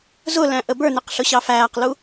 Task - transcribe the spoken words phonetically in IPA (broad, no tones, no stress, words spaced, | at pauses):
zʊlæ̃ ʔəbə˞nɪq ɬʊɕɑfæːqlu